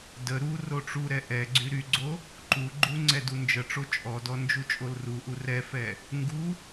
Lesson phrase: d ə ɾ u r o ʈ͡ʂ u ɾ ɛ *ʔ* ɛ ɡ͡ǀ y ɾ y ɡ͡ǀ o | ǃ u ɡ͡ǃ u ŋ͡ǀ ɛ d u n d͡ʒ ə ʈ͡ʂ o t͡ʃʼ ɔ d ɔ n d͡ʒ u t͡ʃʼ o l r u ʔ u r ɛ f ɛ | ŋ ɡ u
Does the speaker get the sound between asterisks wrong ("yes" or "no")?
no